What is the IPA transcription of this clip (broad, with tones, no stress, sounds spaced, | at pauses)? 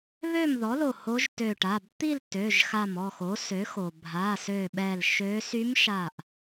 β ø˥˨ m ð ɔ˩˥ l o˧˩ h o˧˥ ʒ t ø˧˩ ʈ a˩˧˩ b t̪ i˥˨ l t ø˩˧˩ ʒ x a˧˩ m ɔ˥˨ x o˩˥ s ø˩˥ x o˩ bʱ a˩˧˩ s ø˧˩ ɓ ɛ˧˩ l ʃ ø˧˥ s y˧˥ m ʃ a˧˩ ʔ